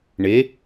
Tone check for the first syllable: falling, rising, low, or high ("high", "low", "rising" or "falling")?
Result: rising